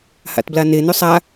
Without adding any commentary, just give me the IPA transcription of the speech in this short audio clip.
h a̰ t b l a n e n ʉ sˤ a

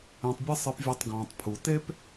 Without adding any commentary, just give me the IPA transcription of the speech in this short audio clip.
ẽ˨ tˤ bʲ ɐ˦ sˤ ɨ˨ p vʲ ɔ˨ tˤ ɡ ɔ̃ː˩ tˤ pʰ u˩ t e˦ p

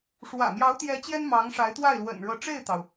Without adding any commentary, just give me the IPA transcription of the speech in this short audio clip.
ʂ w ä̰˨˩ m j ɑ˧˥ ʊ̯ t̪ j ɛ˧˥ t͡ɕ j ɛ˥ n m ɑ˧˥ ŋ ʂ a˧˥ ɪ̯ t̪ w a˥˩ ɪ̯ l w ə̰˨˩ n ɻ ɤ˧˥ ʈ͡ʂ e˥˩ ɪ̯ t̪ ɑ˩ ʊ̯

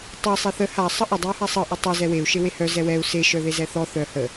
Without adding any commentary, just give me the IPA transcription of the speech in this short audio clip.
tˤ ɛ sˤ e θ ə h a sˤ ə ʔ ə dˤ i u̯ h a sˤ ɤ ʔ ə tˤ ɛ z ɛ w e u̯ ʃ e w e h œ z ɛ w ɛ u̯ s e ʃ œ ð e z ɛ θ ɔ θ œ h ə

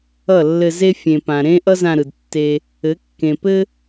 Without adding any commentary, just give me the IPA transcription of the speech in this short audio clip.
ʌ˦˨ lː ɘ˧ z e˦ fʲ ẽ˨ p ã˨ ɾ ẽ˦ ʔ ʌ˦ z ã˧ ɾ ɯ˨ d tː e˦ | ɘ˨˦ kː ẽ˨ p ɘ˦

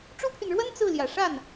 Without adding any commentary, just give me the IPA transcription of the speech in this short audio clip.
ʈ͡ʂ u˥ pʰ y˨ n ɻ w ə˥ n t͡s ɹ̩˥˩ l j ä˨˩ ʂ a˥˩ n

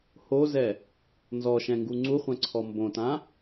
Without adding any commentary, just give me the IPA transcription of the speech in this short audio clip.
h o z ɛ | n z ɔ ʃ ɛ̃ ŋ ɡ u ŋ͡ǀ u χʷ ɛ̃ ǀʰ ɔ m b õ t ã

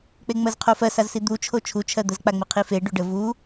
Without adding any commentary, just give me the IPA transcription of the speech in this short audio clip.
k͡p e ŋ͡m ɜ z qʰ o f ɜ s a z s i d̪ u t͡ʃʰ o t͡ʃʰ u t͡ʃʰ ɜ d̪ ə z k͡p a ŋ͡m i qʰ i f e ɖ u ɖ ə v u

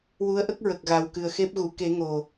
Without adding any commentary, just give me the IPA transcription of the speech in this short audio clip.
w u˧˥ ə̯ ʔ ə˦˥ k̚ ɹ ə˨˩ k̚ ɣ a˨˩ w k ɨ˨˩ ə̯ x e˦˥ p̚ ɣ u˨˩˨ k e˨˩˦ ŋ o˨˩

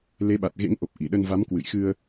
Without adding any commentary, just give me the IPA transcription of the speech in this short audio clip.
l e˨˦ ɓ a˨˩ t̚ ɣ ḛ˧˥ ŋ ʔ o˨˩ p̚ ʔ i˧˩ ɗ ə˧ n v a˨˦ m k w ɨ̰˧˨ j x ɨ˧ ə̯

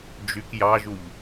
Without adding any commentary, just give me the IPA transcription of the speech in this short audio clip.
d͡ʒ y k j ɑ ʒ u ʎ

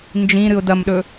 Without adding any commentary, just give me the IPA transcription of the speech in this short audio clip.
n d͡ʒ ĩ ɾ ɨ ʊ̯ d ɐ m ɗ ɵ

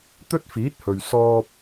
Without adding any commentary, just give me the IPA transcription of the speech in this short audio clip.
t̪ ɵ˥ t̚ f iː˨˥ t̚ h ɵ˨ ɥ s ɔː˧ p̚

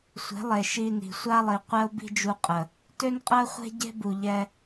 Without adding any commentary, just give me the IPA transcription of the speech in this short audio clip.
sʷ e̤˨˦ lˠ e˨ ʃ i˧ n i̤˨ sʷ a˦ lˠ i˨ qʷ ɛ˦ o̯ b i̤˦ d͡ʒ u˧ qʼ ə˨ | t ø˦ n qʼ ɜ˦ χʷ e̤˦ ɟ e̤˦ b u˨ ʎ ɛ˧

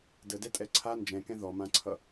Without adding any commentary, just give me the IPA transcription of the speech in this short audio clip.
d ə d ɛ tʼ ɛ ǀʰ a n d͡ʒ ɛ̃ k ɛ̃ ð ɔ m ã ǀʰ ʌ

